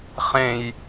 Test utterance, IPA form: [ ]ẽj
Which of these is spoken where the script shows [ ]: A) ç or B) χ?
B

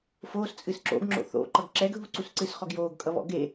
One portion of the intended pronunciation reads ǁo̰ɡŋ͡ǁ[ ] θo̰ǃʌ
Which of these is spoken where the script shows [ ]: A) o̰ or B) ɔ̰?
A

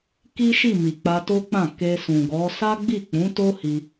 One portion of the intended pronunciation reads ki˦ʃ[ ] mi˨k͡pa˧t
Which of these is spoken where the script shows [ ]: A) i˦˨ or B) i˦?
A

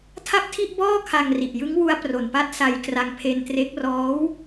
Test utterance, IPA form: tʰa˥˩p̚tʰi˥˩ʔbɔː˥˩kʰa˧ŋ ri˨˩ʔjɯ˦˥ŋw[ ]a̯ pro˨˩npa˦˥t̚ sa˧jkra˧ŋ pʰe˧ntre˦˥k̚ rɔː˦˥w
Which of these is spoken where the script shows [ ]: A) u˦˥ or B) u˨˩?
A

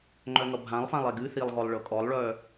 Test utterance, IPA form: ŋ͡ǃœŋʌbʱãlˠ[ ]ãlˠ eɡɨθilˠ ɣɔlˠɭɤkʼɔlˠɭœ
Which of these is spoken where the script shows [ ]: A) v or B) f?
B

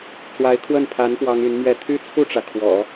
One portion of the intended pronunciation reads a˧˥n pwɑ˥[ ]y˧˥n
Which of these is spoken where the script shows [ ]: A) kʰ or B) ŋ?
B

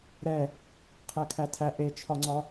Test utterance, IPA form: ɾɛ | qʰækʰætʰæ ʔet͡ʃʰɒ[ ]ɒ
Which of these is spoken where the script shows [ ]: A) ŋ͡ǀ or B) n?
A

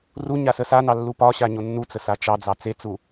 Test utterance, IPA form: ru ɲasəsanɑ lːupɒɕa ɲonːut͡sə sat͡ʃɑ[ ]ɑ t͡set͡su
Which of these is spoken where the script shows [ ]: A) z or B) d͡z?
B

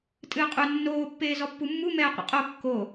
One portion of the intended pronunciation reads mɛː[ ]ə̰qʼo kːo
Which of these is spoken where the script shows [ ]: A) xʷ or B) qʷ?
B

